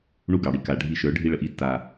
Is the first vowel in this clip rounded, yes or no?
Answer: yes